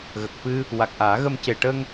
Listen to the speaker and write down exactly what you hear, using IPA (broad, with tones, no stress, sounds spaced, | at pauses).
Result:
ɣ ə˨˩ k̚ f ɨ˧ | w a˨˩ k̚ ʔ aː˨˩˦ ɣ ə˧ m c e˨˩˨ ʈ ə˧ ŋ